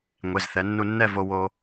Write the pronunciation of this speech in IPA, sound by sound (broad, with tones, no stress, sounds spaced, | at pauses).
ŋʷ e˩˧˩ z θ ɛ˩˧ nː u˧ nː ɛ˥˧ v o˧ w o˧